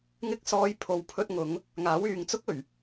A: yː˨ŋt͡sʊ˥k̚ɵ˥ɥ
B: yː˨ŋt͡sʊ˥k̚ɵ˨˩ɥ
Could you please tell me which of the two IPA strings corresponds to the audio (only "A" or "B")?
B